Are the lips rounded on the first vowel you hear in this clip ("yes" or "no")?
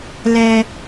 no